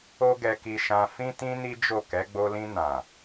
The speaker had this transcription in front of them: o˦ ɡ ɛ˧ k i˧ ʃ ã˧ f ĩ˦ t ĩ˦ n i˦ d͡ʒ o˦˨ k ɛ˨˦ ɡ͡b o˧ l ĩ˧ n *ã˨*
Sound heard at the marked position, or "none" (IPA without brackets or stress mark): ã˨